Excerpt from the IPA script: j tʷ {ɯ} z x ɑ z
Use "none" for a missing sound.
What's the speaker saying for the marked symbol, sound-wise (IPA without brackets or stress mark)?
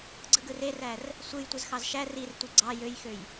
ɯ